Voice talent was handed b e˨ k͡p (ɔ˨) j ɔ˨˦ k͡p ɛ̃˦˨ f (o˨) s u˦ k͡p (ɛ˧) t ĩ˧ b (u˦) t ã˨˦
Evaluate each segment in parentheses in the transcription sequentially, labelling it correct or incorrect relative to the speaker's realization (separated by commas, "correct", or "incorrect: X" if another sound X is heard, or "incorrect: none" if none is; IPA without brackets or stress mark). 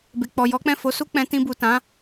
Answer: correct, incorrect: o˨˦, incorrect: ɛ̃˧, incorrect: u˨